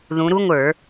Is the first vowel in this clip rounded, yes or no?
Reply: yes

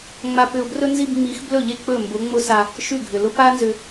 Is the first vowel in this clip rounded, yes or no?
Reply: no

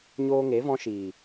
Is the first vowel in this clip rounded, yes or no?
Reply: yes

